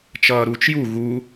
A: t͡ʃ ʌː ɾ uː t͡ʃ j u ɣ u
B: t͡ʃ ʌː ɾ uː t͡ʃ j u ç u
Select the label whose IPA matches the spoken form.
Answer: A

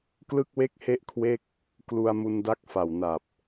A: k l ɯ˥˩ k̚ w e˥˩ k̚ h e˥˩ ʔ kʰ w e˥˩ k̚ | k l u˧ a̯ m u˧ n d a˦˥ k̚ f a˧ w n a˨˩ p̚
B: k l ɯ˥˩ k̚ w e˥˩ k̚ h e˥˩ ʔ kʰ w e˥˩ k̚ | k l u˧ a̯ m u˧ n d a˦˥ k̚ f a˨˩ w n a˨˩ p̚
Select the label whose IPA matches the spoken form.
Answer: B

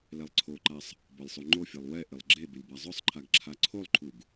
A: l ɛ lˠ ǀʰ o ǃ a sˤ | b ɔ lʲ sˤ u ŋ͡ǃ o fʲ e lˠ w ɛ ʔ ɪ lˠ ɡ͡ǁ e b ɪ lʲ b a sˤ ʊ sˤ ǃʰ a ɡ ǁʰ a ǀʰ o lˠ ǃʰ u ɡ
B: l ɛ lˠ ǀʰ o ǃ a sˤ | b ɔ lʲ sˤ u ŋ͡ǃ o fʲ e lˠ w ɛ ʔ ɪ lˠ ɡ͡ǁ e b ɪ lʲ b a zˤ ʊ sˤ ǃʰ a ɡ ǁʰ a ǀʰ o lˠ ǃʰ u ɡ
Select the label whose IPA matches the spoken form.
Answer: B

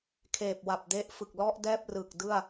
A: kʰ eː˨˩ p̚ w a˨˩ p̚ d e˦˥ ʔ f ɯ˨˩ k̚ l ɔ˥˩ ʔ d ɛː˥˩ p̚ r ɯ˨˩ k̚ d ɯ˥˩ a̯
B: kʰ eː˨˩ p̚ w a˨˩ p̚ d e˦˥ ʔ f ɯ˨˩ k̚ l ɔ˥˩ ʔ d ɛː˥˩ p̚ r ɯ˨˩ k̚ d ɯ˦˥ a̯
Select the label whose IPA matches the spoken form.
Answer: A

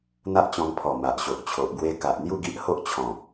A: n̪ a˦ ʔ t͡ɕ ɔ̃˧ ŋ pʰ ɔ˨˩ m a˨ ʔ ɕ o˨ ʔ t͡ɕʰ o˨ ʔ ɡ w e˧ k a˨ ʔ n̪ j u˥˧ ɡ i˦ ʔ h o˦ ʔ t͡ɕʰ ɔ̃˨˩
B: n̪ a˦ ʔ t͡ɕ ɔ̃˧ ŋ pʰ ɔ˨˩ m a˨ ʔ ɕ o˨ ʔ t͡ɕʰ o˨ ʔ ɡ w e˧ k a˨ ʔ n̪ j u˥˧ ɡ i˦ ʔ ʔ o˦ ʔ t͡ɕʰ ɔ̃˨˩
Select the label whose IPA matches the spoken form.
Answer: A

